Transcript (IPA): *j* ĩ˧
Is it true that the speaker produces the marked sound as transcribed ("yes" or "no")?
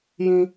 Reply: yes